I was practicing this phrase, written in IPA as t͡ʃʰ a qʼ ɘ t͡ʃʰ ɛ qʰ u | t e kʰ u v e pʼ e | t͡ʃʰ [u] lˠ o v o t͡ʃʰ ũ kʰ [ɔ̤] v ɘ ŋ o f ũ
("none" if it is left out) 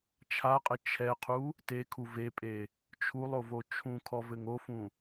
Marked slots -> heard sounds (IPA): u, ɔ

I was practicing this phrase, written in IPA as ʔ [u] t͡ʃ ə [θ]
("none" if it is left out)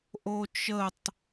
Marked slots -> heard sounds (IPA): o, tˤ

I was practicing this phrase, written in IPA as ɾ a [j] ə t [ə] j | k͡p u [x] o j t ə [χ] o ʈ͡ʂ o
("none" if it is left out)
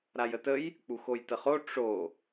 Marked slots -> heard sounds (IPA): j, ə, x, χ

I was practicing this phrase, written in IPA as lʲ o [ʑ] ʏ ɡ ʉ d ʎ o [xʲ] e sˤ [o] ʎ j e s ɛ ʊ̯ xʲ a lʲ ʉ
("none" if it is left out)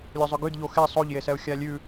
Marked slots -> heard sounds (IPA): zˤ, x, o

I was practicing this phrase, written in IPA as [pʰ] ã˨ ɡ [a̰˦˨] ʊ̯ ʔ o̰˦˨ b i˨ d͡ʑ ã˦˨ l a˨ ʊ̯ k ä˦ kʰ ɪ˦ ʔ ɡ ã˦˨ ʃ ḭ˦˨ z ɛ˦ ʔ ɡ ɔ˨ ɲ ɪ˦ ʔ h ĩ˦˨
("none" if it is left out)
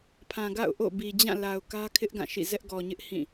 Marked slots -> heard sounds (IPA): pʰ, a̰˦˨

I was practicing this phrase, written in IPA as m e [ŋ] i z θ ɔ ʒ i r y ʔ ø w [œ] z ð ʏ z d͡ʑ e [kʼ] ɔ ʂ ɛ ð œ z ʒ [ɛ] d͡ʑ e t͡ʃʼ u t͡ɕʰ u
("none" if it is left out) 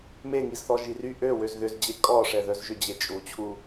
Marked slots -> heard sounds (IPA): ŋ, ø, kʼ, ʏ

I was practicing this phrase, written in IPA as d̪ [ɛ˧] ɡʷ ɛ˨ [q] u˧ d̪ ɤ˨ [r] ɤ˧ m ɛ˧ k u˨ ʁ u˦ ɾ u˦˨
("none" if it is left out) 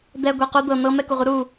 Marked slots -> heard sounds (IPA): ɛ˧, q, n̪

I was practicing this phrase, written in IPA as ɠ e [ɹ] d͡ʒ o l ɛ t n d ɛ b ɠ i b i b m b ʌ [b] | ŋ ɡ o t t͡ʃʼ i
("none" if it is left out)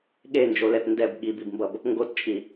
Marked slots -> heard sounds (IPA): n, b

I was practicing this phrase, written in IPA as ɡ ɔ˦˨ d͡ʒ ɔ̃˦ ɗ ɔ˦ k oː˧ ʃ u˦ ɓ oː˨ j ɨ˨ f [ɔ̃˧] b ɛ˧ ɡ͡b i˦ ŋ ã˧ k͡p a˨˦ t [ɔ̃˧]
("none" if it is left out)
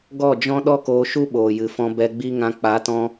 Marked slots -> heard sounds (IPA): ɔ̃˧, ɔ̃˧

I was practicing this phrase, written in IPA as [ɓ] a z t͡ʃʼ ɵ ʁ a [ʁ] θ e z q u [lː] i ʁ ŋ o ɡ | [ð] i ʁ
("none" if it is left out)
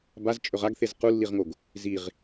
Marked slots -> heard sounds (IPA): b, ɡ, lː, z

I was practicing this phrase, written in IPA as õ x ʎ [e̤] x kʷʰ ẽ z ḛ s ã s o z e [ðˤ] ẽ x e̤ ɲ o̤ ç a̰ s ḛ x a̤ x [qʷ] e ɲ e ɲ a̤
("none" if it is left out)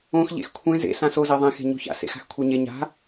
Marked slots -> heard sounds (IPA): ḛ, ðˤ, kʷʰ

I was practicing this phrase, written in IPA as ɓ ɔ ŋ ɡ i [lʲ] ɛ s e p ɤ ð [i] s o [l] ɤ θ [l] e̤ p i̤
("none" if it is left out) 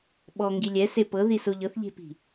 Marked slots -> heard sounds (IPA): lʲ, i, ʎ, ʎ

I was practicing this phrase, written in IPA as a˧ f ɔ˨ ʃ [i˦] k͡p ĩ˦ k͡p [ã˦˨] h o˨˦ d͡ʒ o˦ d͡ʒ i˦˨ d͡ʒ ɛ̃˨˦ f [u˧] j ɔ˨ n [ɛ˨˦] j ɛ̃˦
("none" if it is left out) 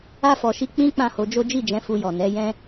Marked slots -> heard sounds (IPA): i˧, ã˦˨, u˧, ɛ˨˦

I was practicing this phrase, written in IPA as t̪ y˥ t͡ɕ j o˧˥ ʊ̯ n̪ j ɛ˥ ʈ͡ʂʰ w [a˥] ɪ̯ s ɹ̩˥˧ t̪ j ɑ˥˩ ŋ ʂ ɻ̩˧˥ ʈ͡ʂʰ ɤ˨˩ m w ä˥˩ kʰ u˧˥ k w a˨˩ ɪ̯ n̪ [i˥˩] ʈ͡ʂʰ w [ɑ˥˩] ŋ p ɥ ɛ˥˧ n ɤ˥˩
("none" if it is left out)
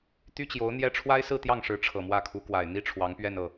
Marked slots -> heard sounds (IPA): a˥, i˥, ɑ˧˥

